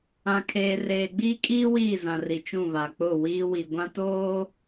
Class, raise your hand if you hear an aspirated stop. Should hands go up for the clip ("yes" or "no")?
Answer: yes